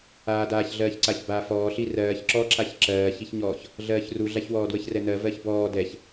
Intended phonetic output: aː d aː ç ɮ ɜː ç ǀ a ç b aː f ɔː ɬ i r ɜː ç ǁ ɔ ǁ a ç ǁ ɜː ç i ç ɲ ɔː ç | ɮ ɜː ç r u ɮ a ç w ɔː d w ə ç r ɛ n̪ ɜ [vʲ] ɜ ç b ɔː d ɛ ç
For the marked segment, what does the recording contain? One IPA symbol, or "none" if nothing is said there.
v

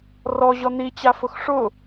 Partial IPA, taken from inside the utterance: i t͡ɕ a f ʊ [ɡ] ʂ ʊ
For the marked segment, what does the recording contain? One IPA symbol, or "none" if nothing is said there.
x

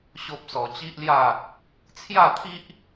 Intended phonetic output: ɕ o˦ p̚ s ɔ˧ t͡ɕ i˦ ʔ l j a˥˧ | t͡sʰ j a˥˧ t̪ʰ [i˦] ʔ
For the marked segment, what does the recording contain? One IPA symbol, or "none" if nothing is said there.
i˦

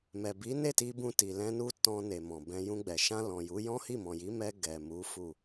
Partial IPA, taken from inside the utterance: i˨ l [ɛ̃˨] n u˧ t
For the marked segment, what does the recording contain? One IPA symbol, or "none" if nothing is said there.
ɛ̃˧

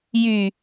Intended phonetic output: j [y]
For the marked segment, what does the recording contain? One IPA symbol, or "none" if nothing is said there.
y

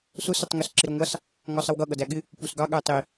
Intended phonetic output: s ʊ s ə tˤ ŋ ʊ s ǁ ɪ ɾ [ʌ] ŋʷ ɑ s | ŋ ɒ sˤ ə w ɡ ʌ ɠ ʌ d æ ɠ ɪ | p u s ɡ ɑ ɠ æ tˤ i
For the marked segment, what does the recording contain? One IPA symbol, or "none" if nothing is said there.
ɒ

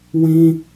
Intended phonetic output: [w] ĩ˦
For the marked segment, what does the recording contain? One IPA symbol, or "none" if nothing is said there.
w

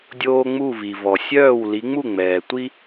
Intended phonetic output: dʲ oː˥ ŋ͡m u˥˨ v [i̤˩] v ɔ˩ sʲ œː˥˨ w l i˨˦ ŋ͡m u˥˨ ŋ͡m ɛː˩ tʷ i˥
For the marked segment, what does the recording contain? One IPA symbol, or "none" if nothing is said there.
i˩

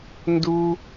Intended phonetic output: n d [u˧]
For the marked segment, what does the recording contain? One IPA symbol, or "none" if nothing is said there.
u˧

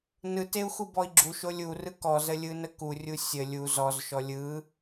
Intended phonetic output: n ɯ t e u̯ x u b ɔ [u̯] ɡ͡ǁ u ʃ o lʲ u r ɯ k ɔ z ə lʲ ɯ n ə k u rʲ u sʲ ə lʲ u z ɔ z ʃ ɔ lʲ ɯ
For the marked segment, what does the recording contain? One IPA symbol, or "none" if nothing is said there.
i̯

